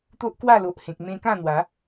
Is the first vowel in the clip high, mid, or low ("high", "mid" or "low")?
mid